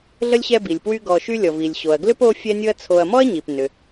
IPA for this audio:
ɮ ə˥ lʲ ɕ ɛ˦ b i˩ lʲ p w y˦ ɡ ɔ˨ ʃ y˦ lʲ ɔ˩ v i˩ lʲ ɕ o˩ ɐ̯ ɡ l ʏ˥ p o˦ fʲ ɛ˦ nʲ ʊ˦ ɐ̯ t͡sʰ o˨ ɐ̯ m ɔ˥ ɐ̯ ɲ i˩ p n ʏ˩

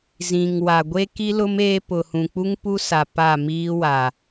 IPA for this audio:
z ĩ˨ ŋ w a˨ ɡʷ e˦ k i˦ l ʊ˦ m eː˦ p ʊ˨ h ũ˨ k͡p u˦ ŋ p u˦ s a˨ p a˦˨ m iː˦ w a˨

